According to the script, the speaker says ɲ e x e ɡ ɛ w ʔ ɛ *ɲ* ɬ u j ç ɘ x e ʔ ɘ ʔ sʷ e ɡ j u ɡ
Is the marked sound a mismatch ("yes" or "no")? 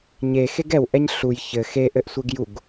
no